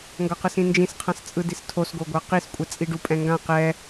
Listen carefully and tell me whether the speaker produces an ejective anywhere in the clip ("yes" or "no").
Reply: yes